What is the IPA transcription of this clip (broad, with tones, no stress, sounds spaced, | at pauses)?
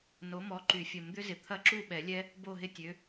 n o˨˥ m ɔ˨˥ ǃ y˨˩˦ fʲ ə˨˩˦ m d̪ ʏ˦˥ z ɪ˨˩ t̪ʰ ɐ˦˥ ǁ u˥˨ ɓ ɛ˨˩˦ lʲ ɛ˦˥ | b o˥˨ ɦ ɪ˥˨ tʲ ø˨˥